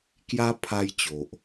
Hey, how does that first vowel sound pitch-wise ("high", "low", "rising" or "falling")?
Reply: high